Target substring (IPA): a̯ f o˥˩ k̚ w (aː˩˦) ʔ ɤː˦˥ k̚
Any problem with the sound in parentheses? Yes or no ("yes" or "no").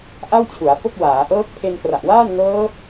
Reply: no